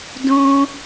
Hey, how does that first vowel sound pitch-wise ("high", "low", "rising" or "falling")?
high